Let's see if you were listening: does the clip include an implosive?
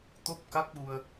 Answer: yes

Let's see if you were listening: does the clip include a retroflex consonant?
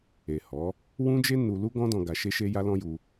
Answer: no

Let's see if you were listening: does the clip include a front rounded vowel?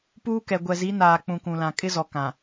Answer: no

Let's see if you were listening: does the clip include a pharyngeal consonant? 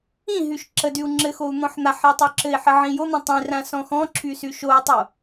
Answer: yes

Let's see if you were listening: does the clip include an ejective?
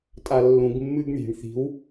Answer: yes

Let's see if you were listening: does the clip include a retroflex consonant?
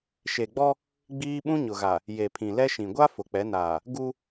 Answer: no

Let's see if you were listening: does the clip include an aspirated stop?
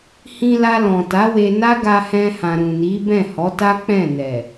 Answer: no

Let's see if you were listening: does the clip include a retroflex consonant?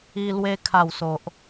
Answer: no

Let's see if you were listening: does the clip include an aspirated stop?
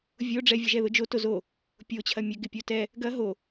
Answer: yes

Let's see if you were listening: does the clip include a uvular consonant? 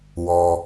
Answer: no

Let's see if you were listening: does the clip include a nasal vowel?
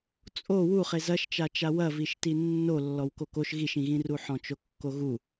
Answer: yes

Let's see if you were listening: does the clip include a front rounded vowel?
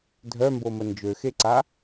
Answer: yes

